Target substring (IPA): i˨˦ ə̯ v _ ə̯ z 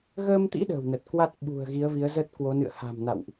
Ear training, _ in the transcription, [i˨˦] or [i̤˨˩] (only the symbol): i˨˦